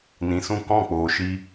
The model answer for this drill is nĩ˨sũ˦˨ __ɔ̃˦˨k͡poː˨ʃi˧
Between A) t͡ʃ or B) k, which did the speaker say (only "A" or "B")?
B